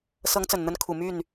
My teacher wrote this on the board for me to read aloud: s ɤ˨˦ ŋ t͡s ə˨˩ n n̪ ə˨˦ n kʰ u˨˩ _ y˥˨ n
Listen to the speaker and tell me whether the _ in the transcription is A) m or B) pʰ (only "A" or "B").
A